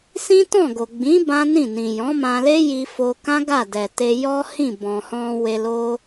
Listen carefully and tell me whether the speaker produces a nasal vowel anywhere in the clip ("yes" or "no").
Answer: yes